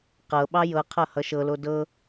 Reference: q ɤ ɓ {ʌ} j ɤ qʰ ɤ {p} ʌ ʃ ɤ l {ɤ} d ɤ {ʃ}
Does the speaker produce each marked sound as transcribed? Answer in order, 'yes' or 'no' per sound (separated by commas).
no, no, no, no